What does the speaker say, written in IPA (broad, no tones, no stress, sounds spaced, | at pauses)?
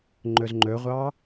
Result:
ŋ͡ǃ ɵ z ŋ͡ǃ ɵ ʁʷ ɑ